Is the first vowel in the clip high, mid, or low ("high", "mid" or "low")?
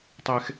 mid